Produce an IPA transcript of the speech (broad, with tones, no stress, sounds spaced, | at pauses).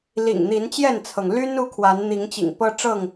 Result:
l ḭ˨˩ ŋ n̪ i˨˦ n t͡ɕ j ɛ˥˨ n t͡sʰ ɤ˩ ŋ l y˦ n u˦ kʰ w a˨˦ n n̪ i˨˦ ŋ t͡ɕ ḭ˨˩ ŋ p ɤ˦ ʈ͡ʂ ɤ˥˨ ŋ